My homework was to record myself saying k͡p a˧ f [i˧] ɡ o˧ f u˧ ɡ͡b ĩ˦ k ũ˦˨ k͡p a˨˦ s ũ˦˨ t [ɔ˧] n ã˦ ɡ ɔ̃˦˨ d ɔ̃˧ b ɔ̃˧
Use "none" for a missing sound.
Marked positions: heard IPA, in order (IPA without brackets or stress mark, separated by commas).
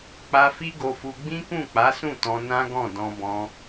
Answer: i˦, ɔ̃˧